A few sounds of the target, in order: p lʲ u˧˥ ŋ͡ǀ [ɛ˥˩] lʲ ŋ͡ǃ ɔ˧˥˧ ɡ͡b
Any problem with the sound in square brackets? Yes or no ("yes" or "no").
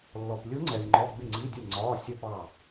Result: yes